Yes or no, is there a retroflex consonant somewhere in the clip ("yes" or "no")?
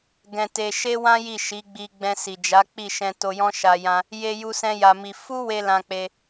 no